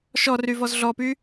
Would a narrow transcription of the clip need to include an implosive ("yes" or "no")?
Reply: no